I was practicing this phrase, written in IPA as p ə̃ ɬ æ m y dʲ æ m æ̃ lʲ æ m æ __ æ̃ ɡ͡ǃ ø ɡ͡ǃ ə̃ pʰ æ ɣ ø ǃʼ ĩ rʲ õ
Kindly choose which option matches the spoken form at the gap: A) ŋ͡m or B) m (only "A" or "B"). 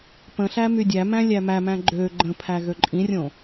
B